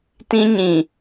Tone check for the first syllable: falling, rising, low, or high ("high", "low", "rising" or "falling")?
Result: high